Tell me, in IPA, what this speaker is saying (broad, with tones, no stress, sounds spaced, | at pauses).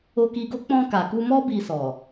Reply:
o˧ k i˧ ɡ o˦ k͡p ɔ̃˧ k a˨ k u˧ m ɔ˦ b i˧ s ɔ˨